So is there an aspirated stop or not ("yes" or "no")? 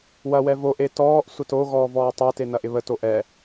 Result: no